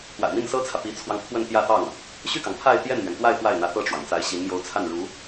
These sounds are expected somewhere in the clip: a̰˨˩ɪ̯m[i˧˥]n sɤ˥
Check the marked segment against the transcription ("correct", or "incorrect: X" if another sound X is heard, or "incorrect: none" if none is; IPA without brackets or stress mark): incorrect: i˥˩